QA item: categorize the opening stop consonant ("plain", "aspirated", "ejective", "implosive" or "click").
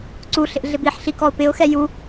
click